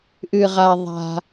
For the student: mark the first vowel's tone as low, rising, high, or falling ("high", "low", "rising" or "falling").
low